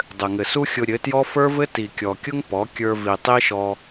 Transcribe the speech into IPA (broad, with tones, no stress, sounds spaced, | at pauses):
dˤ ɘ˨ ŋ ɘ˨ s u˦ xʲ ʊ˧ ɾʲ ɘ˨˦ t j ɔ˦ f ə˞˦ v ɘ˦ t i˨ kʲ ɔ˨ kʲ ʊ˦ ŋ p ɔ˨˦ kʲ ə˞˧ v i˨ tˤ i˦ ʃ ɔ˧